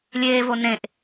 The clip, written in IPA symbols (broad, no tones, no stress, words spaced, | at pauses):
lʲeːvo nẽʔ